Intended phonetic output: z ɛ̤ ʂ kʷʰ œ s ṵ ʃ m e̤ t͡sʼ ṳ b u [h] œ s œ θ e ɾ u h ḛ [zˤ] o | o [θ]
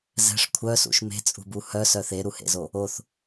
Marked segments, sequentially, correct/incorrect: correct, incorrect: z, correct

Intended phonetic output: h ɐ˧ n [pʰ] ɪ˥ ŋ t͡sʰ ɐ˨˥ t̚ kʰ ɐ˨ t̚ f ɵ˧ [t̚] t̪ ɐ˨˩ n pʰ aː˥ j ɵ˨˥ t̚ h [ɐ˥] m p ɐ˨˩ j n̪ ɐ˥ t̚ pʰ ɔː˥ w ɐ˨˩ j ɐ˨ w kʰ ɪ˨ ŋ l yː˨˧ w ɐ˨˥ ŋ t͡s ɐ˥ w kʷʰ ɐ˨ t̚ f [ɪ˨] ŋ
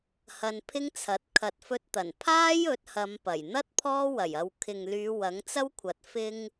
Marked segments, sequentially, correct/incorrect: correct, correct, incorrect: ɐ˨˧, incorrect: ɪ˧

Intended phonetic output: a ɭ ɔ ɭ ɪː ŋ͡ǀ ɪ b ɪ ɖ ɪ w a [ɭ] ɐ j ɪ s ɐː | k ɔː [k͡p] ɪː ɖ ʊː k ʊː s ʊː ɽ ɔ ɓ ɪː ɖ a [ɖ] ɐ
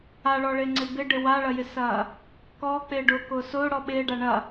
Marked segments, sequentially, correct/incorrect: correct, correct, incorrect: ɳ

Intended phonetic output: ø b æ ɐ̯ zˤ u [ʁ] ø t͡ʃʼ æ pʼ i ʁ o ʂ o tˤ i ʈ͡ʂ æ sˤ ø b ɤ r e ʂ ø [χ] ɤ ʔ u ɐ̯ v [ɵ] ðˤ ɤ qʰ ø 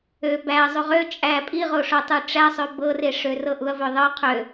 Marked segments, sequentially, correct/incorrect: correct, incorrect: r, incorrect: ø

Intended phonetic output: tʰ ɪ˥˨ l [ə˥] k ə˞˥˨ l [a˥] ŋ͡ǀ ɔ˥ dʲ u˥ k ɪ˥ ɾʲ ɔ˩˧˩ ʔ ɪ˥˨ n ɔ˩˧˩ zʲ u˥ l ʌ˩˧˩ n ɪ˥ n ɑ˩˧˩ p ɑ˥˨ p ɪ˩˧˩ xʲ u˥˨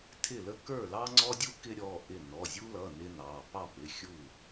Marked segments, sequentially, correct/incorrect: correct, incorrect: ɑ˥

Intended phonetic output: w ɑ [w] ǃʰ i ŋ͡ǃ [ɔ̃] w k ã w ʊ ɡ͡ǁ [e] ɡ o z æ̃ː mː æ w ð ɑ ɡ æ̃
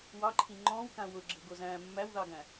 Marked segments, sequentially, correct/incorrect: incorrect: none, correct, incorrect: ɘ

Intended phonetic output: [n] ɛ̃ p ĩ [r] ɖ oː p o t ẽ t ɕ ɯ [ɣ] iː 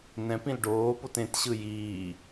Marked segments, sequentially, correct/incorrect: correct, incorrect: l, incorrect: j

